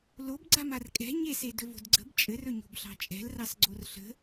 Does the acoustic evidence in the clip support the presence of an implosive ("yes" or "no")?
no